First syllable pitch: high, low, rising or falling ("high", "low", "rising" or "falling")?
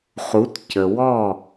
rising